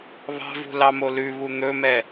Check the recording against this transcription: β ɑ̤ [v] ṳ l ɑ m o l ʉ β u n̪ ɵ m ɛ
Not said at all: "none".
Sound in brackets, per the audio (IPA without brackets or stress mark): v